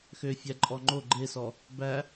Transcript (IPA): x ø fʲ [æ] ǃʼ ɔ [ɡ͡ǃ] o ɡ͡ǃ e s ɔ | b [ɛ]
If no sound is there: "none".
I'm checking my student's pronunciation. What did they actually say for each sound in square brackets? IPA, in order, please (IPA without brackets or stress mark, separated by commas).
æ, ŋ͡ǃ, æ